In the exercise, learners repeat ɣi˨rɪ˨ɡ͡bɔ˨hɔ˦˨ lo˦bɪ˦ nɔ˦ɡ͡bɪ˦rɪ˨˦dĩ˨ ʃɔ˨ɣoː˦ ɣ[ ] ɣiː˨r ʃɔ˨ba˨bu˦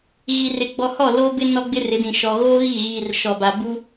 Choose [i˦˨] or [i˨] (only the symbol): i˦˨